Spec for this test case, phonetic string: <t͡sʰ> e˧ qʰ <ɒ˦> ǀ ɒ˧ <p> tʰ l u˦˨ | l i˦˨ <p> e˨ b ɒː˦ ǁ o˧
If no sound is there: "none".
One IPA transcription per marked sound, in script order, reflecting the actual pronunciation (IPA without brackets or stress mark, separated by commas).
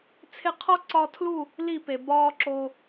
t͡sʰ, ɒ˦, none, p